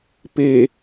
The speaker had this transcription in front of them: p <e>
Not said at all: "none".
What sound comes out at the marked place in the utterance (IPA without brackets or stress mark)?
e